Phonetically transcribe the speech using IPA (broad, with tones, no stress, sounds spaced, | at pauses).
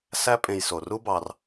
s æ˦ pʼ ẽ˨ j s o˩ r u˥ b ɑ˨ r